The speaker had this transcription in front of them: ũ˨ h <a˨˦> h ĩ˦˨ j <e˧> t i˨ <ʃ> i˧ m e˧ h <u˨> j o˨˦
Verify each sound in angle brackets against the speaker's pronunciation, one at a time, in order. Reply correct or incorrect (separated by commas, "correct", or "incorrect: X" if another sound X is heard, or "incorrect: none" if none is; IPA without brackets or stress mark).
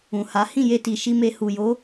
correct, correct, correct, correct